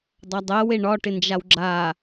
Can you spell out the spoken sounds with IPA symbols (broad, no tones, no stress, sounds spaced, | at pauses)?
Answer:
dˤ a dˤ ɛ w e ɳ ɒ ʈ ɪ n d͡ʒ a w ɡ͡ǁ a